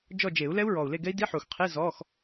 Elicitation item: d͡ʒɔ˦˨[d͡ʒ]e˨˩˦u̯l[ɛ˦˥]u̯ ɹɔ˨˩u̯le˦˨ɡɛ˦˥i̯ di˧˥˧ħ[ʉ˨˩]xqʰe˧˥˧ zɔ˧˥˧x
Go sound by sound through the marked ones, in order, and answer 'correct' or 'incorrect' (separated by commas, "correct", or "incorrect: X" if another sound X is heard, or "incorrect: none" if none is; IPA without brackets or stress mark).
correct, correct, incorrect: u˨˩